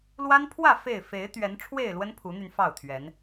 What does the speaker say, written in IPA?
l w a˦ n pʰ w ä˥˨ f e˥˨ ɪ̯ f e˨˦ ɪ̯ t̪ ɥ ɛ˨˦ n ʈ͡ʂʰ w e˥˨ ɪ̯ l w ə˦ n pʰ u˨˦ n̪ y˧ n f ɑ˥˨ ʊ̯ t̪ʰ ɥ ɛ˨˦ n

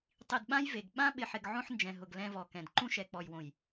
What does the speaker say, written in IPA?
tˤ i˨ d ɓ ã˦ j v e˨ ɡ ɓ ã˦ ɓ ɪ˨ ħ ɪ˨ ɡ ʕ õ˦ ħ n d͡ʒ ɛ̃˨ ɦ ʊ˨ ɡ l ɛ̃˦ v ɔ˨ k ɛ̃˨ d ǃ ũ˦ ʃ ɛ˨ k͡p ɔ˨ j w õ˨ j

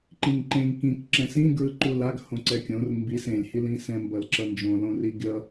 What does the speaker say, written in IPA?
ǃ ĩ ŋ ǃ ẽ ŋ k ĩ k ǁ ɛ̃ s ĩ ɡ ɹ ɯ ǃ u l a ɡ h õ ǀ ɛ kʲ õ r m b i s ẽ lʲ h i l ĩ s ɛ̃ m b ʌ l ǁ ʌ n d͡ʒ õ l õ r i ɡʲ ʌ

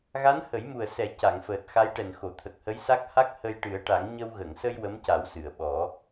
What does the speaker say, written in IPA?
ɣ a˧˥ n h ə˨˩˦ j m u˨˩ ə̯ s ɛ˨˩˦ c a˨˩˨ ŋ f əː˨˩ t̚ x a˧˥ j ʈ ɛ˨˩ n x o˨˩˨ t̪ʰ ə˨˩ k̚ h ə˧˥ j s a˦˥ k̚ h a˦˥ k̚ h ə˧ j ʈ ɨ˨˩˦ ə̯ ʈ a˨˩˦ ŋ ɲ ə˧ w ɣ ə˨˩˨ ŋ s ə˧ j w ə˧˥ m c a˨˩˦ w s ɨ˨˩˨ ə̯ ɓ ɔ˨˩˦

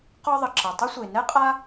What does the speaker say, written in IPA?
q ɔ˥ ðˤ ə˩ ǁ ə˩ tˤ ʊ˥ sʷ e˩ n ɛ˥ qʼ a˥

